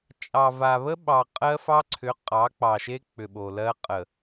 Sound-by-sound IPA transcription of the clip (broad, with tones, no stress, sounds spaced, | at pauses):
t͡ʃʼ ɑ˨ v a˨ β ə˦ ɓ ɑ˨ qʼ ɜ˦ f ɑ˦ ǀʰ ʏ˨˦ qʼ ɑ˨˦ k͡p ɑ˨ ʃ e˦ k͡p ʏ˨ ɓ o˨ l ɜ˦ qʼ ə˨